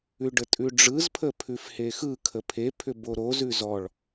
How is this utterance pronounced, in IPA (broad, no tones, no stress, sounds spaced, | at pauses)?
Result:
ʉ ɖ ə tʼ ʉ ɖ͡ʐ ɯ z pʰ ə pʰ ʉ f h e x ɯ kʰ ə pʰ e pʰ ʏ b o ɾ o z ʉ z ɔ ɭ